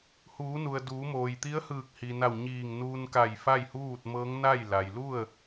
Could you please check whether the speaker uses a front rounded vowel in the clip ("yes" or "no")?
no